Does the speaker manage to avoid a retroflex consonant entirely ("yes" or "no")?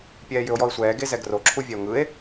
yes